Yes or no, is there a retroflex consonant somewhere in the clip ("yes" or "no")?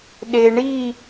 yes